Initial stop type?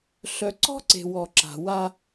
click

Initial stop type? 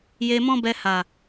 plain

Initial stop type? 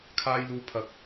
aspirated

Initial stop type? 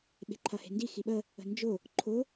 implosive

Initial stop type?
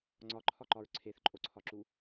click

